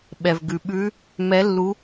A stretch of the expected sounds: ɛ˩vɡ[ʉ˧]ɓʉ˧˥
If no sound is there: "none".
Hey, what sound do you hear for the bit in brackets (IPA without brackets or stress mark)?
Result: ʉ˩